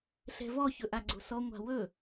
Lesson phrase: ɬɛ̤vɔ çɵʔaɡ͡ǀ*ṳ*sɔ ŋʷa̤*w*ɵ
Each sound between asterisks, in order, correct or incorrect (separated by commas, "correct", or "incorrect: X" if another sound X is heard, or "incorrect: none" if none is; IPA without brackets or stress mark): incorrect: o̤, correct